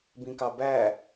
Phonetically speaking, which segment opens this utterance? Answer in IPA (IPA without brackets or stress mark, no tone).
b